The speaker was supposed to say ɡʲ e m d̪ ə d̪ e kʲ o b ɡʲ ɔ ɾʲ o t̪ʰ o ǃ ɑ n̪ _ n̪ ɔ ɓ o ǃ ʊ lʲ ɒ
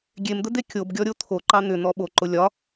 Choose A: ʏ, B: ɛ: A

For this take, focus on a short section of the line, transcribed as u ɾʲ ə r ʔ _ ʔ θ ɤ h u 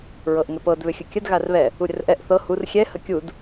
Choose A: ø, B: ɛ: B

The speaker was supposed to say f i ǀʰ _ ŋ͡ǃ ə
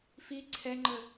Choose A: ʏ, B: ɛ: B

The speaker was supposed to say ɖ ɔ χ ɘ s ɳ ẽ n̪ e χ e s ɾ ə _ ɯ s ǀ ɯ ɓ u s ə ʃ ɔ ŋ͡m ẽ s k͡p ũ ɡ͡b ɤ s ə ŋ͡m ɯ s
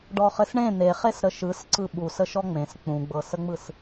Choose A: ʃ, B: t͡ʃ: A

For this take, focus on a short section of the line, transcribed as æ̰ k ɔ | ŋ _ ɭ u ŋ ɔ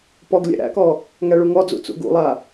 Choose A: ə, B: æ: B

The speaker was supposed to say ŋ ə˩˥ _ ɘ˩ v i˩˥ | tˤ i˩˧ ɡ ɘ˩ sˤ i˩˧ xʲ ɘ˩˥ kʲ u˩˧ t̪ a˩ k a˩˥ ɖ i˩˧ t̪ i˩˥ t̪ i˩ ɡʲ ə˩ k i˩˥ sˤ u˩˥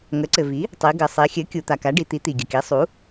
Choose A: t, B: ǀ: B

